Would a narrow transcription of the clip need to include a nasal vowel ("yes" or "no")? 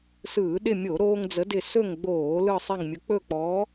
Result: no